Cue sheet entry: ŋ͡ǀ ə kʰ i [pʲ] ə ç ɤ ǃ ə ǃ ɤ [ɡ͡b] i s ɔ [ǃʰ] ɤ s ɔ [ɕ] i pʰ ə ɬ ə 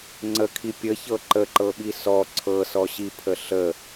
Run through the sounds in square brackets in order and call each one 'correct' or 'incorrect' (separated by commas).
correct, incorrect, incorrect, correct